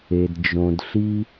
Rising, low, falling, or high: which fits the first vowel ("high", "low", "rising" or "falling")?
low